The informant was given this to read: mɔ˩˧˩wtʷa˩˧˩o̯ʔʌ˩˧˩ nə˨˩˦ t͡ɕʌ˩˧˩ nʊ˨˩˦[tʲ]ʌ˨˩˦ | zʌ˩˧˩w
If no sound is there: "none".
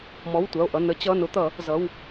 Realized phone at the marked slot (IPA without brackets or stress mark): t̪